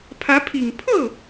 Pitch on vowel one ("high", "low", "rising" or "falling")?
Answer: rising